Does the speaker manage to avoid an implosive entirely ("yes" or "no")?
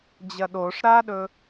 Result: no